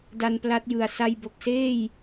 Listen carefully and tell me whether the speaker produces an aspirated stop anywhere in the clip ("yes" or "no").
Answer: no